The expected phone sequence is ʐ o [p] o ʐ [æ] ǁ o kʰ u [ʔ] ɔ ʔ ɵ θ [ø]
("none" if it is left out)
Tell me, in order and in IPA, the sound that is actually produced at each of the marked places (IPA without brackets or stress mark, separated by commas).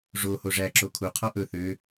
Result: h, æ, qʰ, ø